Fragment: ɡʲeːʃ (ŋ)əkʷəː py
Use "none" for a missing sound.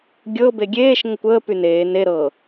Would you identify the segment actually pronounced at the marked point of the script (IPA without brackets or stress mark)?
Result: ŋ